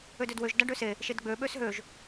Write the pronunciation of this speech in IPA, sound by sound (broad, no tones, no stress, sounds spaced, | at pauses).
ø d ø d w ø ʒ d a ɖ ø s e | ʃ e d ɡ͡b ø ɓ ø s ɦ ø ʒ